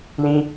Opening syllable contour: high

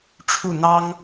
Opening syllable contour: falling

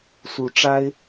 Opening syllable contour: rising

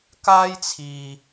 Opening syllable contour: high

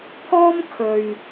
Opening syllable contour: high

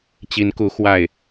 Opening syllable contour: rising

